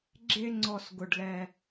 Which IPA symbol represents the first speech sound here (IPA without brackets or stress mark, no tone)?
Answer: ɡ͡ǁ